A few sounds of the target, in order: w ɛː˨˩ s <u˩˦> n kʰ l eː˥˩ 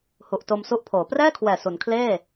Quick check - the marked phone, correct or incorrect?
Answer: correct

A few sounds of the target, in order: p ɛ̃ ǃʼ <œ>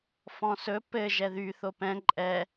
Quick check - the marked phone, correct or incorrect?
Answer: incorrect: ɛ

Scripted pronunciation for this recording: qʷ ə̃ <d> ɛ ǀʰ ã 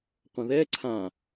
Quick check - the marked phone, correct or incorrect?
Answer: incorrect: ð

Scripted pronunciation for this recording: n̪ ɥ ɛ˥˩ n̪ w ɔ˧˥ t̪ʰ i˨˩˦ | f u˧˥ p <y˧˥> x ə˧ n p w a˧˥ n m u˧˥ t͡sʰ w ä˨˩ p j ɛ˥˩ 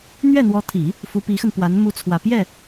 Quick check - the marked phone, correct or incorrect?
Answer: incorrect: i˧˥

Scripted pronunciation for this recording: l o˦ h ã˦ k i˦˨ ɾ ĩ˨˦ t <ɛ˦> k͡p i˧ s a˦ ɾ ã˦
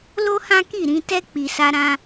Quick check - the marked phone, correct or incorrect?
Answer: correct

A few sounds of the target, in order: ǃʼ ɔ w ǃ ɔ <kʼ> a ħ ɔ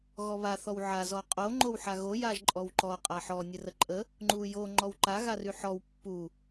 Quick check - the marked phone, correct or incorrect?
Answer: incorrect: qʼ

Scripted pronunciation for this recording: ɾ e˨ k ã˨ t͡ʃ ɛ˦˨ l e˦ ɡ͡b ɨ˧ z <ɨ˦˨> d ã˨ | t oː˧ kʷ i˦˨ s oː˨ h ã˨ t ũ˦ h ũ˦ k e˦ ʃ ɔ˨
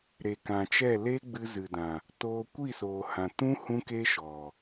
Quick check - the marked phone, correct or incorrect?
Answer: incorrect: ɨ˨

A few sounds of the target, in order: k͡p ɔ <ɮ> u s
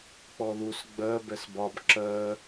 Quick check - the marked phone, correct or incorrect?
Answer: incorrect: ð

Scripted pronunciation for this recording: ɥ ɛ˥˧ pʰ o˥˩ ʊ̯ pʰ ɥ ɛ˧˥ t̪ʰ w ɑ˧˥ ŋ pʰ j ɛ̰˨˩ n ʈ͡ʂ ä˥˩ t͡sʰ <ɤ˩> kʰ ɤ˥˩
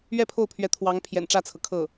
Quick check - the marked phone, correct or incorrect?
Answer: correct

